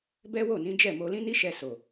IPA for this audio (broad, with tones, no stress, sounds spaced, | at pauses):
b ɛ˦ w o˦˨ n ĩ˨˦ d͡ʒ ɛ˦˨ m o˧ l ĩ˦ n i˦ ʃ ɛ˧ s o˨